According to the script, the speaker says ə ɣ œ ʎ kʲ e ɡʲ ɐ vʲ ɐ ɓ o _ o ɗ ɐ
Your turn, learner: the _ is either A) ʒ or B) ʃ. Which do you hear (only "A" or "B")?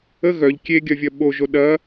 A